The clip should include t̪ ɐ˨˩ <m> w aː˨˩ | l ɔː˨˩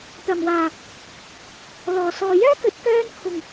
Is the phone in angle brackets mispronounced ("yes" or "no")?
no